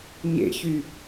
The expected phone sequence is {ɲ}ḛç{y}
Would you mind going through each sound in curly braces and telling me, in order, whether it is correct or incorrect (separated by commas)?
correct, correct